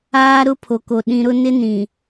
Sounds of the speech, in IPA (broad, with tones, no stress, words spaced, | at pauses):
aː˦ ɾʊ˦pʰo˨ko˨ ɗĩ˨ɾʊ˦ nɪ˦nĩ˨